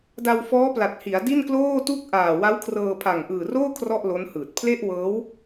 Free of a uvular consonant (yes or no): yes